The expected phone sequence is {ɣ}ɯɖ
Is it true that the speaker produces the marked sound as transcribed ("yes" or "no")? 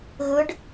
yes